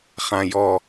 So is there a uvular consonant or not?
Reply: yes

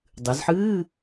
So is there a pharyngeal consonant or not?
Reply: yes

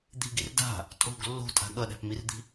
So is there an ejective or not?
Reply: yes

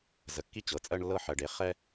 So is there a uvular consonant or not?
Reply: yes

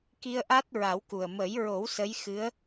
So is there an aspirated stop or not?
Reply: no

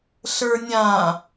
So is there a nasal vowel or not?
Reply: yes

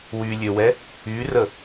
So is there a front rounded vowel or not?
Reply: yes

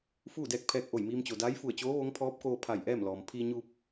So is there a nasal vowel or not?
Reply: no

